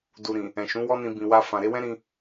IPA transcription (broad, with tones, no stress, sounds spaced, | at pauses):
d u˨ ɾ ĩ˨ | ɛ̃˨ ʃ ũ˨˦ w ɔ˦ n ĩ˧ b ĩ˨ w a˧ f ã˨ ɾ e˧ w ɛ̃˦ ɾ ĩ˧